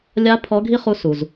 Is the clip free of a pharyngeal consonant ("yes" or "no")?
yes